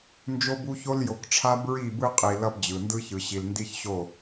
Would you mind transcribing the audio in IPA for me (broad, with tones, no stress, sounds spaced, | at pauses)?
n d͡ʒ o˦ b u˦ ç o˦ l j o˨ k ʈ͡ʂʰ a˦ b ɹ i˦˨ b ɯ˦ qʼ i˨ l ʌ˦ b d͡ʑ ɯ˨ n d ɯ˦ ç ɯ˨ ɕ i˨ l n d i˦ ç ɕ o˦˨